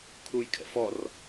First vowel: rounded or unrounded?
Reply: rounded